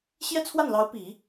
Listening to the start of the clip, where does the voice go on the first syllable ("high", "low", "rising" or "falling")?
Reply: high